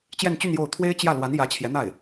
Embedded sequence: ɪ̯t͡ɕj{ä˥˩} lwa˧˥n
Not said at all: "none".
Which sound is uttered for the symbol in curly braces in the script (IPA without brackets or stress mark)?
ä˥˩